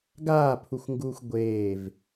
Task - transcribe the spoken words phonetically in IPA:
ɡ aː pʰ u xʷ ŋ ɡ uː xʷ ɡʷ eː v

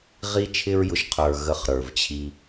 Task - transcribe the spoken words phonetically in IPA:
ʁ i˦ t͡ʃʰ ɪ˦ ɹ j ʊ˧ ʃ qʰ ə˞˨ ɣ ə˧ χ ɾ ə˞˨ v t͡ɕʰ i˧

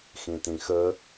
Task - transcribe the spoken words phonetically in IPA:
x ĩ t ĩ x ə

